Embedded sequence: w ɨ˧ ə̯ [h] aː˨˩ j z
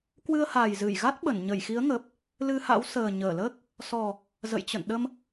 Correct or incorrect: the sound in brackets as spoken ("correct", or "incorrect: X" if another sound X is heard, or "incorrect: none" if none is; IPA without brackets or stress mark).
correct